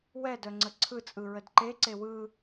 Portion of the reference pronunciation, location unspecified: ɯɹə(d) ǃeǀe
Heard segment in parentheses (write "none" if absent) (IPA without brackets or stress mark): d